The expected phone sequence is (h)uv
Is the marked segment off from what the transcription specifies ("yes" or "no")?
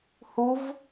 no